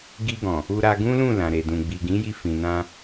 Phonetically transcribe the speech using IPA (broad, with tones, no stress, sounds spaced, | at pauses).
ɡ i˧ ɡ ɔ̃˨ | u˧ ɾ a˧ ɡ ũ˦ l ũ˦˨ l ã˨ ɾ e˨ d ũ˨ ɡ͡b i˨ ɡ ĩ˨˦ j i˧ f ĩ˨ n ã˧